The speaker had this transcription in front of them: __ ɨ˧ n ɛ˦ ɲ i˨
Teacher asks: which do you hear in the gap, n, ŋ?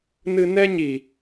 n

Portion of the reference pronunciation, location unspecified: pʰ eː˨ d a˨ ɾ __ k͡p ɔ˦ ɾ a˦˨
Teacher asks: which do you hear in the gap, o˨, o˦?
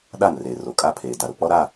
o˨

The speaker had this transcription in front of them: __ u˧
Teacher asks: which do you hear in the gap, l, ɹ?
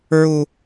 ɹ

